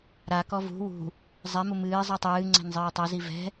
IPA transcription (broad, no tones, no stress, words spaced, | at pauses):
ɾakɔ vṳ wṳ | zˤɛmu mɨː zˤitˤɨːŋ͡ǀɛ̤n zˤɨːtˤazi vɛ̤